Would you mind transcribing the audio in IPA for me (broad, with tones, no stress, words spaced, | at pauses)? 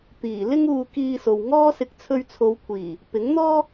t̪iː˨˩ lɪ˥ŋuː˧kiː˧so˨w ŋɔː˥sɪ˧k̚ t͡sʰɵ˥ɥ t͡sʰo˨˧wkʷʰiː˨˩ | pɪ˨˥ŋn̪ɔː˥